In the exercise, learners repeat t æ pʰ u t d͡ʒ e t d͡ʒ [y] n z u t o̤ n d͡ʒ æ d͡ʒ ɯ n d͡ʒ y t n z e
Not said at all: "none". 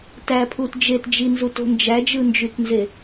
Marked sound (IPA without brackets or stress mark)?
i